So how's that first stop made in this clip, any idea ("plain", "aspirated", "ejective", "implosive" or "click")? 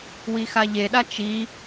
implosive